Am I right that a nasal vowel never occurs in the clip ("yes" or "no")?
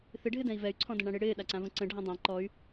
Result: no